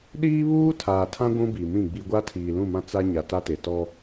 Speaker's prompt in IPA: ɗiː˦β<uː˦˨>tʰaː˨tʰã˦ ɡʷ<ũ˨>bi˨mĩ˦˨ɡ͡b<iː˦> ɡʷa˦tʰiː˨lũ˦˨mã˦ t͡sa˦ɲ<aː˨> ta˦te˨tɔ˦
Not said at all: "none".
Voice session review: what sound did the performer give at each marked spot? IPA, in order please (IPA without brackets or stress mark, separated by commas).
uː˦, ũ˦, i˦, a˨